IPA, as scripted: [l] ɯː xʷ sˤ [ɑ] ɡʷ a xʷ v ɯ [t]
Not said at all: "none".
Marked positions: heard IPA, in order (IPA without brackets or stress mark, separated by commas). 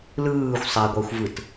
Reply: l, a, t